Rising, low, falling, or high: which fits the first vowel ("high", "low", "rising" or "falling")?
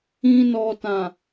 low